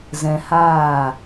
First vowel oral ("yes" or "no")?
no